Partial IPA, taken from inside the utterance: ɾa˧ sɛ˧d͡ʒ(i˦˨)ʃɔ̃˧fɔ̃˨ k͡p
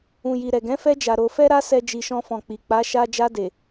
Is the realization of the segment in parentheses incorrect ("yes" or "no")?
yes